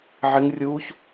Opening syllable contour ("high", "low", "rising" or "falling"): high